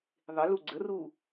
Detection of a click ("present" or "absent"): present